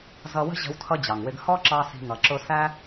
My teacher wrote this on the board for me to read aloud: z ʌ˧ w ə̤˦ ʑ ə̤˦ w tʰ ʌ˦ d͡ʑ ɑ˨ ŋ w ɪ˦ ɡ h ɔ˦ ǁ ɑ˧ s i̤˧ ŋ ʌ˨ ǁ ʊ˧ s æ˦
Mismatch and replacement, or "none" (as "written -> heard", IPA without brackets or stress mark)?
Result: none